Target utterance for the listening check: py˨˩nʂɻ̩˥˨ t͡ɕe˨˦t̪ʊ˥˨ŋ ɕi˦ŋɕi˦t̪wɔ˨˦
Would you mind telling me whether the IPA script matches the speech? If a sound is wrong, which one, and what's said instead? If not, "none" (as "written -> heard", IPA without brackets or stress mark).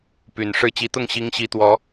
e˨˦ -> i˨˦